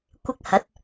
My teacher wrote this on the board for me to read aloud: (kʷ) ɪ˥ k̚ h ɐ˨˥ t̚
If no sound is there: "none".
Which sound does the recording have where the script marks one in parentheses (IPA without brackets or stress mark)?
kʷ